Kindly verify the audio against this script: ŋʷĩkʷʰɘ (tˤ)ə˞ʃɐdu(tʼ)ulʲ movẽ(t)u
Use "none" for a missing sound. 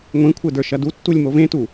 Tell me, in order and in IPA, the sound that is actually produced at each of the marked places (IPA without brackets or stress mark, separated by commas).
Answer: d, tː, t